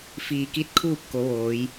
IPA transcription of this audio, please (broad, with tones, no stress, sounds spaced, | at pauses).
f iː˧˩ k i˥˨ t̚ kʰ uː˥˨ p̚ k o˩˧ ʋ oː˩˧ j